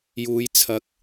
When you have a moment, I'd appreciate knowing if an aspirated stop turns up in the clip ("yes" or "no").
yes